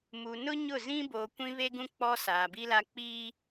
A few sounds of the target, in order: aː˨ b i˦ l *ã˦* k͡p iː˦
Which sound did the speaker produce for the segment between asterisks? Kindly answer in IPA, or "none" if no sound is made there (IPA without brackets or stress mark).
a˦